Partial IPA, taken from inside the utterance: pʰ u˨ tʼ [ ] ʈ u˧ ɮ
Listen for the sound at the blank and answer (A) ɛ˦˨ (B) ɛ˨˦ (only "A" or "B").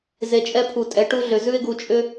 B